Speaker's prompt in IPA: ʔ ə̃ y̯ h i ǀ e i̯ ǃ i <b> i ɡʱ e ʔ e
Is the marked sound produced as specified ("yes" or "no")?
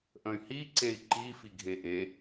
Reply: no